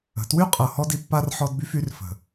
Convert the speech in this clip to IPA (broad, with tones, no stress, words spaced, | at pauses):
ə̤˨ twy˦qʼɤ˨ hɔ˦di˨pːa˦r ħɔ˦dby˦fy˨˦r fə̤˨